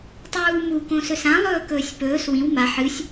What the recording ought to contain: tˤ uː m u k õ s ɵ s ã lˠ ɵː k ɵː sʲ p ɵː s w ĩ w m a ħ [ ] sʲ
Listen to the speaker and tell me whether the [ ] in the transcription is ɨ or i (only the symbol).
ɨ